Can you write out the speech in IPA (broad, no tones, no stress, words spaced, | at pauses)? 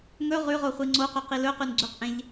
ŋɵ ʁʉʁoχʷi ŋ͡ǀoqœqi lɵqʉnɡ͡ǀʉqʔẽʎ